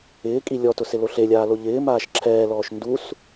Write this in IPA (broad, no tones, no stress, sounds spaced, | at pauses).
ɪː kʼ i lʲ ɔ t ʊ s ɪ l o ɬ e lʲ aː l o ʎ ɪː m aː ʃ ǁʰ ɛː l ɔː ʃ n d u s